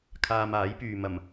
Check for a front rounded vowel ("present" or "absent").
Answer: present